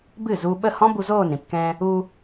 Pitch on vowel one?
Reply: falling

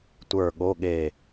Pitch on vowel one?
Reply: falling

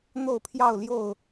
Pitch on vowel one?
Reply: falling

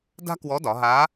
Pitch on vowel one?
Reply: high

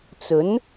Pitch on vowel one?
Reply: rising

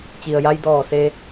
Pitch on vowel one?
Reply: low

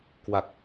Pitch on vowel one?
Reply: low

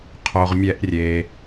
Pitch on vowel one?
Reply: low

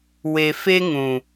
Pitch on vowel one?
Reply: low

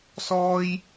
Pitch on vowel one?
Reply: high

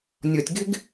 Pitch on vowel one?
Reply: low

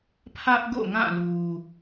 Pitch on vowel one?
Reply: high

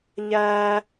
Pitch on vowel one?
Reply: high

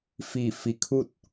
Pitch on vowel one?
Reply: falling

